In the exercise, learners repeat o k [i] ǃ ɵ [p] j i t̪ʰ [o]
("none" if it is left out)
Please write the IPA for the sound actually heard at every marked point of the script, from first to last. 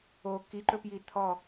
i, p, ɔ

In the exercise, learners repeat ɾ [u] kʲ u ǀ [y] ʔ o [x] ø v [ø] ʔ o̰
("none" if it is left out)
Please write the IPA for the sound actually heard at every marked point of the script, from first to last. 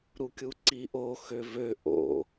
u, i, x, ø

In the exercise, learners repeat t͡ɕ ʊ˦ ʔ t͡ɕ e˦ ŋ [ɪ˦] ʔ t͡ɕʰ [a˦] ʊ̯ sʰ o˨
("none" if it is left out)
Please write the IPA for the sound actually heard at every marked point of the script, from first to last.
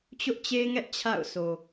ɛ˦, a̰˦˨

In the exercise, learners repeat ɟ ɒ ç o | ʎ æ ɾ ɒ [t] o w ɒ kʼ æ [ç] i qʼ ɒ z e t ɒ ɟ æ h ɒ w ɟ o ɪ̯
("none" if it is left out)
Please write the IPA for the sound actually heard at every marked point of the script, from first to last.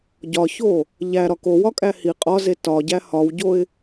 k, h

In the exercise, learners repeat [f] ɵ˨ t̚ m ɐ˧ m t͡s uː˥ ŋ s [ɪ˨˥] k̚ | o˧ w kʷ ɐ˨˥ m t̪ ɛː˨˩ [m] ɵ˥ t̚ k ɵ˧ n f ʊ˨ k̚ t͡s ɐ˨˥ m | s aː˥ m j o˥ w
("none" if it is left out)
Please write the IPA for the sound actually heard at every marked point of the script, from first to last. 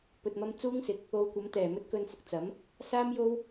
p, ɪ˨, m

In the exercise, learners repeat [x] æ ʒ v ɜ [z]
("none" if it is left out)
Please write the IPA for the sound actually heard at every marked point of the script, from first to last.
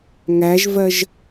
ŋ, ʒ

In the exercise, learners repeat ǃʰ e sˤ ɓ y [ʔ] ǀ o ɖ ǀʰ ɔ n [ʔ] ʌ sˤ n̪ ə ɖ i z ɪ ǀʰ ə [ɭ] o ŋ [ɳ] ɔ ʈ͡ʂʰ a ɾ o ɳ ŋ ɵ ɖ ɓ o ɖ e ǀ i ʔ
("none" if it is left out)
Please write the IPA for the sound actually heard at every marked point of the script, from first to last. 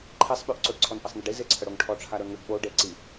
ʔ, ʔ, ɽ, ʈʰ

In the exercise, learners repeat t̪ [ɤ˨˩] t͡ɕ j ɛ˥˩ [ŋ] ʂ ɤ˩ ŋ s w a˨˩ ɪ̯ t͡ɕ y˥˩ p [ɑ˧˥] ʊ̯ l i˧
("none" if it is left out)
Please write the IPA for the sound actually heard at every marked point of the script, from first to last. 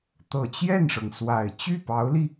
ɤ˨˩, n, ɑ˧˥

